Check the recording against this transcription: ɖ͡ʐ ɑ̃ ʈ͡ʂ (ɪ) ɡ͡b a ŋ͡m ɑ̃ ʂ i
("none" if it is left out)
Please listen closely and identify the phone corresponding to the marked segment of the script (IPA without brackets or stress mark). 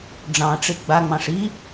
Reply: ɪ